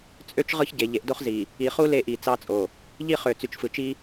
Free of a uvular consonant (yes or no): no